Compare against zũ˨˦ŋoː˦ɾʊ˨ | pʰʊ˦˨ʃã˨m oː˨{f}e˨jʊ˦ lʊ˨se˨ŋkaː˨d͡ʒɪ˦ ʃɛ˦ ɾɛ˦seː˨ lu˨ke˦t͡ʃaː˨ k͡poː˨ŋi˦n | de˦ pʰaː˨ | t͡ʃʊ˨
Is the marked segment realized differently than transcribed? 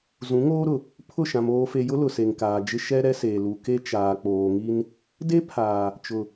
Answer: no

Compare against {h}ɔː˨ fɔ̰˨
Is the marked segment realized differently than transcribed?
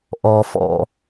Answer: yes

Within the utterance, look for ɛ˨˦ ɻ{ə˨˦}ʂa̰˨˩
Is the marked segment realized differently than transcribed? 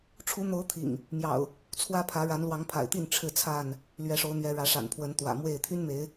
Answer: yes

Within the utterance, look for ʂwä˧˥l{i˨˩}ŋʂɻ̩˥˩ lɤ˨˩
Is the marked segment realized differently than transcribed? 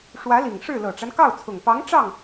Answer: no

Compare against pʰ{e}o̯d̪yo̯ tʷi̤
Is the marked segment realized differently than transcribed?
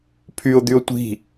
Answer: yes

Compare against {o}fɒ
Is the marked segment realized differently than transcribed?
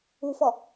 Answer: yes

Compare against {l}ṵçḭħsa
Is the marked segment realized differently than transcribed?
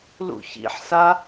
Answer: no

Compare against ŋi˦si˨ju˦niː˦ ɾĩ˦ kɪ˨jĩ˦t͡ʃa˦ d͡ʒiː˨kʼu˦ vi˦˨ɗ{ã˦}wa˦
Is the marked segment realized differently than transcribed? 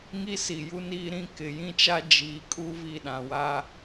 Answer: yes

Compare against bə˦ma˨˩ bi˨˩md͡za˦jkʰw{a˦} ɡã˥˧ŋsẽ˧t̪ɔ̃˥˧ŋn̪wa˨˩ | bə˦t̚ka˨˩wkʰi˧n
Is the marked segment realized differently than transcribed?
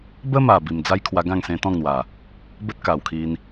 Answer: yes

